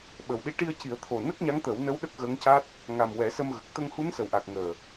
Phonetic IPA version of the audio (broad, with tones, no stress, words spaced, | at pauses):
ɓə˨˩w ɗi˧ ʈi˧ə̯ci˨˩˦ə̯t̪ʰo˨˩ nə˦˥k̚ɲa˧˥ŋt̪ə˨˩˦wnə˧˥w ɗə˦˥k̚ɣə˧˥ŋca˦˥t̚ | ŋa˨˩m wɛ˨˩˦sə˧mɣə˨˩k̚ t̪ə˧ŋhu˧˥nsə˨˩wʔa˨˩k̚ ŋəː˨˩